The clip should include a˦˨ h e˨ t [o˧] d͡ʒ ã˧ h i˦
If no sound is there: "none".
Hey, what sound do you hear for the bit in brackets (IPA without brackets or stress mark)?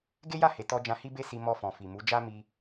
ɔ˧